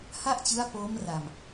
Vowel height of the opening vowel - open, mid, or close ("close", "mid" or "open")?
open